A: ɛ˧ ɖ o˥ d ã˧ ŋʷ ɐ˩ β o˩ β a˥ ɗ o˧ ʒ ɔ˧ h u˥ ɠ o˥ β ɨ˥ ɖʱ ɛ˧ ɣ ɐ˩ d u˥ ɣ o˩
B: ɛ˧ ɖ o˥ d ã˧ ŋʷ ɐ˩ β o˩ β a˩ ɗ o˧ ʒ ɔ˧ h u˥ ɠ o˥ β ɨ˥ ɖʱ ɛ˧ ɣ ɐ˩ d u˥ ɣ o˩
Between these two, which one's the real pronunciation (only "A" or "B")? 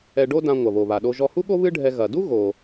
B